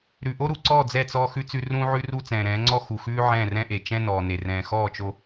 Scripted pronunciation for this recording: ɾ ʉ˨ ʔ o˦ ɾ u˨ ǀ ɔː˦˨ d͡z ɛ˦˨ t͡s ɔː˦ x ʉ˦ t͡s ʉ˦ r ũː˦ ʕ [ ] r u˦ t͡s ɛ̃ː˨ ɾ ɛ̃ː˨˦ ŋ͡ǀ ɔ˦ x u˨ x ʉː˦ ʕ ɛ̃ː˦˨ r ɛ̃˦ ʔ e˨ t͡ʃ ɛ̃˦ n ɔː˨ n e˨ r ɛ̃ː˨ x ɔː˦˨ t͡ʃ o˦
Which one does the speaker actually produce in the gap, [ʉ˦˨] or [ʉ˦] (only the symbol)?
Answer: ʉ˦